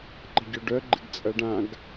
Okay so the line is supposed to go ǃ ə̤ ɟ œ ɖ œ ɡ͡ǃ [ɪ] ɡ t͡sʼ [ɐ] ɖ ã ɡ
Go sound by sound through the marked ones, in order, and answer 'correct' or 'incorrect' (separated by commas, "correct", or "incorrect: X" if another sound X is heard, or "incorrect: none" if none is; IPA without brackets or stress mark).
correct, correct